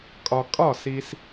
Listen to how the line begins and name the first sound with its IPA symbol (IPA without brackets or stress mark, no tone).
kʼ